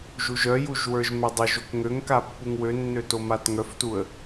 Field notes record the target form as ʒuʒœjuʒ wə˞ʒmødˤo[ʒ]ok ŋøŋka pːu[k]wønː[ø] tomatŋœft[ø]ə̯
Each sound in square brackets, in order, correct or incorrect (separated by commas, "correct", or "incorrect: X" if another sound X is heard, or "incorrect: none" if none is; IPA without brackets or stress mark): correct, incorrect: ŋ, correct, incorrect: u